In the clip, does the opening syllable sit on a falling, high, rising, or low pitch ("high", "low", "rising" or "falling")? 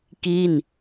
falling